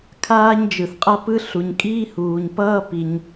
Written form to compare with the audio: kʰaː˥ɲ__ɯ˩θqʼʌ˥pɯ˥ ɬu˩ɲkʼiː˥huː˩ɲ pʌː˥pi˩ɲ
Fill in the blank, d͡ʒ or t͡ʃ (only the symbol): d͡ʒ